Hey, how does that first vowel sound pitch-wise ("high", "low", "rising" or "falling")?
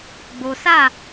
low